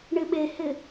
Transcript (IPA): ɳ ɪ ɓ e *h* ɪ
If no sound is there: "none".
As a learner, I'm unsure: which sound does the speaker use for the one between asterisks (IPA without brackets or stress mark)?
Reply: h